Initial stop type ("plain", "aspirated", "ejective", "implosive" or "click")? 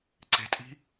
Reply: click